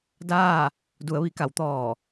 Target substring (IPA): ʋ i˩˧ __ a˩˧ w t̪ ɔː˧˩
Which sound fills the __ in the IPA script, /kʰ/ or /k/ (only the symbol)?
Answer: k